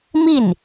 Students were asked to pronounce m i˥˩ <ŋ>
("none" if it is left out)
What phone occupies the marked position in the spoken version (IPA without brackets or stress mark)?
n